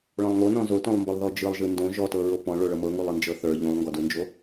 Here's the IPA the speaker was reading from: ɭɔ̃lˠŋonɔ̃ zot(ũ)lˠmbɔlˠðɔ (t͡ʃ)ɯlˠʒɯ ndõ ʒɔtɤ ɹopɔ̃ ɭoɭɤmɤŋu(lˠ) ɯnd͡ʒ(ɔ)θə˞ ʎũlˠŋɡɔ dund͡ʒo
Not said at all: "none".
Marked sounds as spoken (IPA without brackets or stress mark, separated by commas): õ, d͡ʒ, lˠ, ɤ